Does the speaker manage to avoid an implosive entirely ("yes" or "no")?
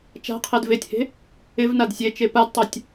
yes